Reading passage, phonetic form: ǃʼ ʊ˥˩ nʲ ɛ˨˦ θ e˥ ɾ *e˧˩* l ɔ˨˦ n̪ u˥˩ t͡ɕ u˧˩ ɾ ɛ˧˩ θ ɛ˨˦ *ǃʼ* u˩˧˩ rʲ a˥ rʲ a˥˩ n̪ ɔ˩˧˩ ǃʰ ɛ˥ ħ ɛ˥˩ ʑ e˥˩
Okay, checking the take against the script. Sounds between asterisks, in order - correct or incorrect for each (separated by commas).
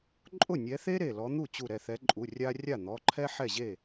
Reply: correct, correct